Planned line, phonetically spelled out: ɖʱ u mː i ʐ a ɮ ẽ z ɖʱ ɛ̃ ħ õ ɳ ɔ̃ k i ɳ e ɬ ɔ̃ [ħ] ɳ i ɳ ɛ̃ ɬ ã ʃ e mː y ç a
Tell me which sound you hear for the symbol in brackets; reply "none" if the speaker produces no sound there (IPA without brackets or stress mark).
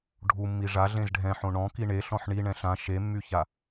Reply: ħ